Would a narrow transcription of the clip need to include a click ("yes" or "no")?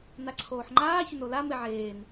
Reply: yes